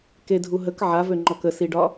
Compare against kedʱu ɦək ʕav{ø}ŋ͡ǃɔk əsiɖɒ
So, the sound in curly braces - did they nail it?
yes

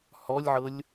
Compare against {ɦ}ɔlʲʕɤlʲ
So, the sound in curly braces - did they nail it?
no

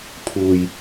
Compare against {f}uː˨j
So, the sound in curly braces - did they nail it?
no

